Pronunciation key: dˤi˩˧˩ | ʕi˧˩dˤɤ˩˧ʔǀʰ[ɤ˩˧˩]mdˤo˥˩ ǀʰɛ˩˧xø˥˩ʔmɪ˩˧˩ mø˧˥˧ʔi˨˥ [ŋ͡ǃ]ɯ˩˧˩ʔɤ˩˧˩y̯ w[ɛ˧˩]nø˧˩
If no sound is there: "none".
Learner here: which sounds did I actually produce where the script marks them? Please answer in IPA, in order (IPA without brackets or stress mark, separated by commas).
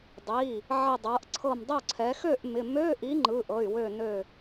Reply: ɤ˧˩, ŋ͡ǃ, ø˧˩